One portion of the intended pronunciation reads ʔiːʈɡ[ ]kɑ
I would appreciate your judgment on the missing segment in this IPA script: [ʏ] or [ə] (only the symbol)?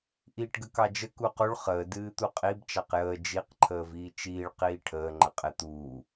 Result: ə